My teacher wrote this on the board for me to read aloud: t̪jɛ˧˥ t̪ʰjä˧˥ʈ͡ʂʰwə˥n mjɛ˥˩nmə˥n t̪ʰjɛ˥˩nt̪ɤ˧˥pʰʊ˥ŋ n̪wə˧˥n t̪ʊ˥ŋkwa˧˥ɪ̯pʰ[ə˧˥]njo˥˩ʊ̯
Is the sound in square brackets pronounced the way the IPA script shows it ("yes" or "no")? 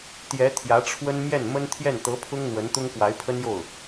no